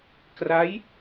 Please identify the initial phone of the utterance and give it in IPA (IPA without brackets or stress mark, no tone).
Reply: k